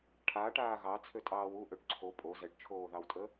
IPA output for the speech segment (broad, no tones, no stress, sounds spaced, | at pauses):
ʈʰ aː ʈ aː ɣ ɑ t͡sʰ ø tʼ ɑː w u ʔ ø ʈ ǀʰ o pʼ o z ɛ ʈ t͡ʃʰ oː ð ɑ w tʼ ə